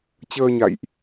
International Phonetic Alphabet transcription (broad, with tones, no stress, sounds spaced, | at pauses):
t͡ɕ əː˧ ɲ a̰˧˨ j ʔ